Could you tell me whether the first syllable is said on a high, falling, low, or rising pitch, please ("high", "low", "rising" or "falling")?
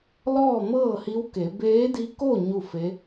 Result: falling